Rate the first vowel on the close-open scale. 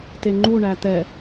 mid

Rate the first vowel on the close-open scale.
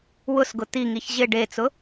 close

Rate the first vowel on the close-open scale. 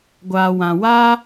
open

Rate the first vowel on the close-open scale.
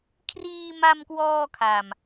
close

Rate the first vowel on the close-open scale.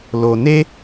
mid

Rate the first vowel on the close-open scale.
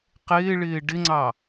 close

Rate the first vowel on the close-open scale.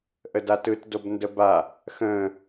mid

